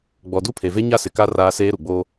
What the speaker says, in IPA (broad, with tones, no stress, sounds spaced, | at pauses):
ɡ͡b ɔ˨ d u˦ pʰ e˨ v e˦ ɲ a˦ s ɪ˨ k a˦ r aː˦ s eː˦ ɾ u˨ ɡ͡b oː˦